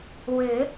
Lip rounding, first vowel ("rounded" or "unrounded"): rounded